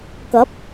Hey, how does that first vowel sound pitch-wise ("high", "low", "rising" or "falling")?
rising